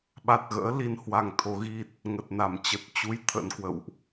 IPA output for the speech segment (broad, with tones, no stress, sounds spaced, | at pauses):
ɓ a˨˩ t̚ ɣ ə̰ː˧˥ l i˧ n h w a˧ ŋ t̪ʰ o˨˦ ɣ i˦˥ t̚ | ŋ ə˨˩ t̚ n a˧˩ m t͡ɕ ə˨˩ t̚ t͡ɕ u˨˦ j t̪ʰ ə̰˧˥ n k w ə̰˧˨ w ʔ